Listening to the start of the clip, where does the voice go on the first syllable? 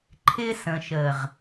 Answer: high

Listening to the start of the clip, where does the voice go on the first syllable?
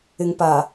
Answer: low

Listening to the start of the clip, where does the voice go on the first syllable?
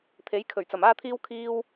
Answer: rising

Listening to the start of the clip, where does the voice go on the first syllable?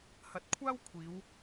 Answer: rising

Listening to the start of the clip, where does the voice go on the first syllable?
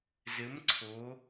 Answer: rising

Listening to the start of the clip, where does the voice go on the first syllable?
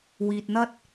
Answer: low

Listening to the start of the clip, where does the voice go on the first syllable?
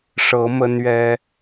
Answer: rising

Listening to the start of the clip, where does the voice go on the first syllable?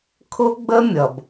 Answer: high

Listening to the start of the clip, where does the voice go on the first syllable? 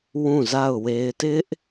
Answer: falling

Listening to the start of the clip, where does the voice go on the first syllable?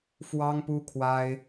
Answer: high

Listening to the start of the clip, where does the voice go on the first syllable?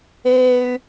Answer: high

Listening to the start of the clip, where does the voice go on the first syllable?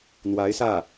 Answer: rising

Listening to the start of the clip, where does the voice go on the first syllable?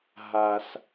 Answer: low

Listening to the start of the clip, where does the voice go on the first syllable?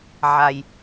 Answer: low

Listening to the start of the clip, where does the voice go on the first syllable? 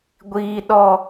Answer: high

